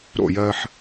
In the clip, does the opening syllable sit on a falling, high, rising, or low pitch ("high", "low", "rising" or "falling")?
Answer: falling